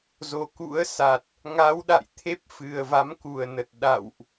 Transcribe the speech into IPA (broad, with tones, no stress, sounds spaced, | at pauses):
z o˨˩ k ṵ˧˥ ə̯ s a˨˩ t̚ | ŋ a˨˦ w ɗ a̰˧˨ j t̪ʰ e˦˥ p̚ f ɨ˨˩ ə̯ v a˨˦ m k u˨˩ ə̯ n ə˨˩ t̚ ɗ a̰˧˨ w ʔ